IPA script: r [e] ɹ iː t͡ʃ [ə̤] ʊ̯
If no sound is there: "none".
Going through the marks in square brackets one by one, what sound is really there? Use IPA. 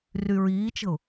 y, ə̤

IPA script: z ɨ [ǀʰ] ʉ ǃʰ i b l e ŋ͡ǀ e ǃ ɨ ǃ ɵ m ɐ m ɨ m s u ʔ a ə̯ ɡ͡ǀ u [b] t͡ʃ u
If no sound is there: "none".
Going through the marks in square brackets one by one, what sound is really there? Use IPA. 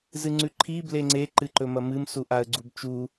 ŋ͡ǀ, b

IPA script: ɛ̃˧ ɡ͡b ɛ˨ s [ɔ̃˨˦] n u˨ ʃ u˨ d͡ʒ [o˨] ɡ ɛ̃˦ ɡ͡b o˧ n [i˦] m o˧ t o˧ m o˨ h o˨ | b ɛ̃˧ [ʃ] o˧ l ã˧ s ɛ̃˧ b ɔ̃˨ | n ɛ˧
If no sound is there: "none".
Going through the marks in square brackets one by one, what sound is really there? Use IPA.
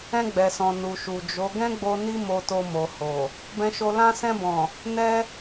ɔ̃˨, o˨˦, i˦, ʃ

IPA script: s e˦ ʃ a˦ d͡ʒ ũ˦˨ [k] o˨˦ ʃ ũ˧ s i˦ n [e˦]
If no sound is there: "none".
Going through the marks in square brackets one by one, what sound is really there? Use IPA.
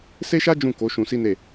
k, e˦˨

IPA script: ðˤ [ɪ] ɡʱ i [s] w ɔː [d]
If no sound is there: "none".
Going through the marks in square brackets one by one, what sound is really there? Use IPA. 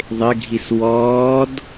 ɪ, s, d

